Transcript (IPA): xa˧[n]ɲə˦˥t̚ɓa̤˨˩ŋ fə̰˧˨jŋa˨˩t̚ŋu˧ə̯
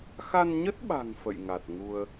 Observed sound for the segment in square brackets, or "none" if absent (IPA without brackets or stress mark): n